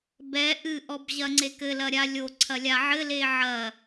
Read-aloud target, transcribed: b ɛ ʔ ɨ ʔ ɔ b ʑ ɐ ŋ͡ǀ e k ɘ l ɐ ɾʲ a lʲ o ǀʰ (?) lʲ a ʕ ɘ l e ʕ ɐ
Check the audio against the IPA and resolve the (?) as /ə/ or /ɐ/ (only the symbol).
ɐ